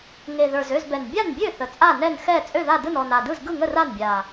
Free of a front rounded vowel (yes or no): no